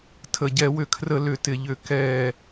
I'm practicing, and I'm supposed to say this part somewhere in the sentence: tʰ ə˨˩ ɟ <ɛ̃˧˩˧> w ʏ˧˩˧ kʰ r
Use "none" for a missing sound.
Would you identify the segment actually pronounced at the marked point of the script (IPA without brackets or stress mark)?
ɛ˧˩˧